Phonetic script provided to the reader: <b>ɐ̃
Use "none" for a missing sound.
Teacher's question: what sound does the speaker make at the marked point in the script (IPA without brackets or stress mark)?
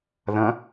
ð